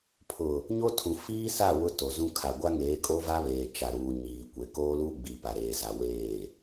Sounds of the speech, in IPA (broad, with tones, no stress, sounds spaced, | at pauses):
pʰ ʊ˨ | ɲ o˦ tʰ ũ˨ f iː˦ s a˦˨ w ʊ˦ t o˨ z ũ˦ kʰ a˨ ɡʷ a˦ ŋ eː˨˦ kʼ o˦ v a˦ β eː˨ t͡ʃ a˨ ɾ uː˨ ɲ iː˨ kʷ e˨ k oː˦ l uː˦ ɡ͡b iː˨ p a˨ ɾ eː˨ z a˨ w eː˦˨